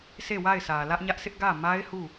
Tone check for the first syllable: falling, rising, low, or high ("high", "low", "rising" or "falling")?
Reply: falling